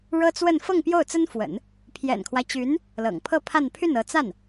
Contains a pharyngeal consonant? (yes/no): no